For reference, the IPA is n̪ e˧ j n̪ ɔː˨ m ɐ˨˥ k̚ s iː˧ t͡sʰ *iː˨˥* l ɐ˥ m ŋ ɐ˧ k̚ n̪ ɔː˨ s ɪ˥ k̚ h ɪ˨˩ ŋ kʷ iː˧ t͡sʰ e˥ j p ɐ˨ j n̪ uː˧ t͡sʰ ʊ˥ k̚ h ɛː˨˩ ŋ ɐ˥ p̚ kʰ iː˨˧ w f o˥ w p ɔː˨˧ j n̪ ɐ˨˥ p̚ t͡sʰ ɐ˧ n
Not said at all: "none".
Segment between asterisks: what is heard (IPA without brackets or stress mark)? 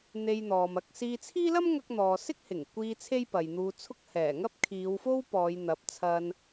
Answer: iː˥